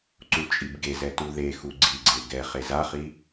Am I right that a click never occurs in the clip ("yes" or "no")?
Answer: no